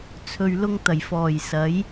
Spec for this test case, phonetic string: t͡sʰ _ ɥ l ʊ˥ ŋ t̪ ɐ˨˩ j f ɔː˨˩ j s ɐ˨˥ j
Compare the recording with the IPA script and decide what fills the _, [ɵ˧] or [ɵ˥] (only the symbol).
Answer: ɵ˧